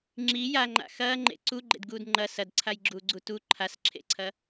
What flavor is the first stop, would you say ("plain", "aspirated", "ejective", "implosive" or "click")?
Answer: click